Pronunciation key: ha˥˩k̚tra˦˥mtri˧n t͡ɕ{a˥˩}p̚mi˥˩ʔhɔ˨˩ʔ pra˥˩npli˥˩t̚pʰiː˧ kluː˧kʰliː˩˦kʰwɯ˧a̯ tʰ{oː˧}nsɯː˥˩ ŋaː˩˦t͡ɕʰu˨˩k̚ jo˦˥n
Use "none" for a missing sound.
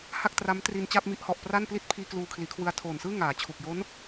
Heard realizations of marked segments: a˥˩, oː˨˩

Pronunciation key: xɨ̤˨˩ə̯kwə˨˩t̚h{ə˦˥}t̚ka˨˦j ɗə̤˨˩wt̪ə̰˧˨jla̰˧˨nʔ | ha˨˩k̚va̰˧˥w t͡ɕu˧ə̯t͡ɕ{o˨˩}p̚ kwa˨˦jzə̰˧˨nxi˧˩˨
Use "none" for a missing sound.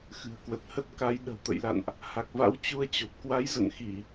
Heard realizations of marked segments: ə˦˥, o˨˩

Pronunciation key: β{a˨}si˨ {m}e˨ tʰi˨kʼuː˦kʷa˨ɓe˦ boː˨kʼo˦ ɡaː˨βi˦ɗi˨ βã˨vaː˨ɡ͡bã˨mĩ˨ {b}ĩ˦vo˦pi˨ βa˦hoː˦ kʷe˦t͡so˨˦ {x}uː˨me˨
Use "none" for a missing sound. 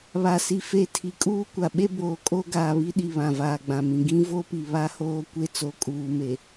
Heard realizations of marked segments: a˨, f, ɡ, kʼ

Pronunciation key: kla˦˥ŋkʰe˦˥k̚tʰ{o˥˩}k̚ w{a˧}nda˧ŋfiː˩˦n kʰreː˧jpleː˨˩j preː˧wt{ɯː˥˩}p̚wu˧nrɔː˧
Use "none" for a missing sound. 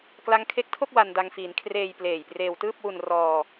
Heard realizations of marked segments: o˥˩, a˧, ɯː˥˩

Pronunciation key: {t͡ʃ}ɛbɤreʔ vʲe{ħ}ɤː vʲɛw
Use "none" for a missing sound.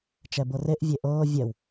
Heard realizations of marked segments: t͡ʃ, ʔ

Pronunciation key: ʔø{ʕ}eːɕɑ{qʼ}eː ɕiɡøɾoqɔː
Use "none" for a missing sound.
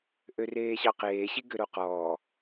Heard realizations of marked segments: r, q

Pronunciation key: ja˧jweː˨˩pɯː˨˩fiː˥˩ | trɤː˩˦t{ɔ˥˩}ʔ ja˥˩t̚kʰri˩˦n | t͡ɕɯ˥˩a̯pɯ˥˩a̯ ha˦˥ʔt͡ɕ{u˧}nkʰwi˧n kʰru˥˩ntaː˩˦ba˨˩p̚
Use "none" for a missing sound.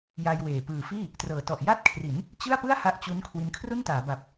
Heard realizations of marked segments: ɔ˨˩, u˦˥

